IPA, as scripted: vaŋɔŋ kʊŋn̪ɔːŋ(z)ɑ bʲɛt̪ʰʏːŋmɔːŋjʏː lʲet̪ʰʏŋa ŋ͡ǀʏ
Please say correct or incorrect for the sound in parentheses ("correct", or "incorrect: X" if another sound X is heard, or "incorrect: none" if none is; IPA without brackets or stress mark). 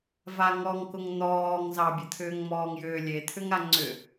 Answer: correct